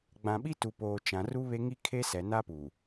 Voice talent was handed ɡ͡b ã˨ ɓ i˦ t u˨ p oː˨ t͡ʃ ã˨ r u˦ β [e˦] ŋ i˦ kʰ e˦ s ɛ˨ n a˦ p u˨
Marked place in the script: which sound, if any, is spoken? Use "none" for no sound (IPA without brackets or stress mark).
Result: e˦